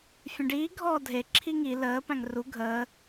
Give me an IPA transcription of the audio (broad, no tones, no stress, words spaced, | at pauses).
fʲə̃ɖiː ɡʱɔːdʱe ǁʰiŋi ləː pæ̃ŋru ɡʱəː